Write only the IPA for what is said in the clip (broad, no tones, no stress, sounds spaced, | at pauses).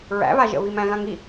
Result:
ɹ æ̰ β a ʒ ə̰ β i m æ̃ ɣ ã ŋ i